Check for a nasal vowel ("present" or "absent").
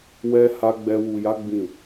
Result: present